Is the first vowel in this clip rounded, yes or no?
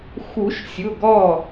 yes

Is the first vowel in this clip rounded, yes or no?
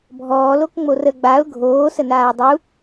yes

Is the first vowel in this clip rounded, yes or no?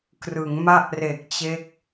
no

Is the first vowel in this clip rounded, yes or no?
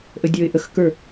no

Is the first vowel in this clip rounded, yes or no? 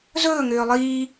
yes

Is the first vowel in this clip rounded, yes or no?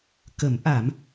no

